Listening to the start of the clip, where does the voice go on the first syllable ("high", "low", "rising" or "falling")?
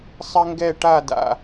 high